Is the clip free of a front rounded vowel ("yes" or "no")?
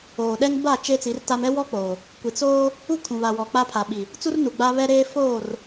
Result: yes